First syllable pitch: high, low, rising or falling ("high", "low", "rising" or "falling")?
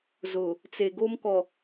low